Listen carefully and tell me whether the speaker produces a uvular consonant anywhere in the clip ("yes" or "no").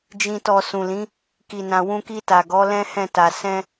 no